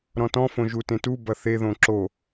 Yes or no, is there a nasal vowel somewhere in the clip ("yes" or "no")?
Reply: yes